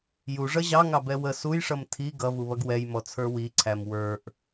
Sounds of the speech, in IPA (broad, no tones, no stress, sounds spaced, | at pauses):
j u ʐ ʌ ʑ ɑ ŋ ɑ b ɛ w ə s u j ʂ ʌ m tʰ i ɡ ʌ v u β ʌ ɡ w ɛ j m ɔ t͡sʰ ə˞ w i ǀʰ æ m w ə˞ ʔ